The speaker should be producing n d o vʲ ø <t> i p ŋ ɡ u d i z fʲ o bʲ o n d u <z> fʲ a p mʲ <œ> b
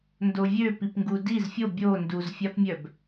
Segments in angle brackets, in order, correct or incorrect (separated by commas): incorrect, correct, correct